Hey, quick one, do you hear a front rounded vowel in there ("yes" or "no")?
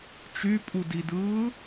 yes